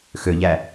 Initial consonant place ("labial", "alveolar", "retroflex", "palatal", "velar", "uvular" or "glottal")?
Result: velar